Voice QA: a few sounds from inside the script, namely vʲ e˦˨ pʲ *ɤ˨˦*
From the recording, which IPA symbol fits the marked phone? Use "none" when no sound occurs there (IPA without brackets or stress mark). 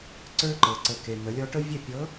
ɤ˨˦